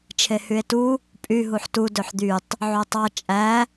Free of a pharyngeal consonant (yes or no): no